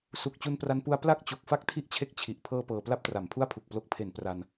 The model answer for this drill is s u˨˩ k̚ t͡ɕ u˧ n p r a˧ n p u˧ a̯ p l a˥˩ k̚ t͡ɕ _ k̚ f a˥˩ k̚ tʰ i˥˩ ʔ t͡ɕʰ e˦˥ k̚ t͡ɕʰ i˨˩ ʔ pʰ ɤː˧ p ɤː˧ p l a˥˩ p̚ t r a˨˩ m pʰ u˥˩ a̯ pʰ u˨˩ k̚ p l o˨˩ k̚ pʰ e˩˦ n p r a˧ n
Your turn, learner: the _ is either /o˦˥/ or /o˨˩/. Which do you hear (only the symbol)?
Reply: o˨˩